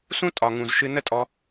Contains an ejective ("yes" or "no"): yes